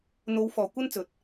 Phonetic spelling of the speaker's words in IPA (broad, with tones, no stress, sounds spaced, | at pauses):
n̪ o˨˧ w f ɔː˨˩ kʷ ɐ˥ n t͡s ɵ˨ t̚